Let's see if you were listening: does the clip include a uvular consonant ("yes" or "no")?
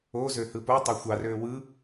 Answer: no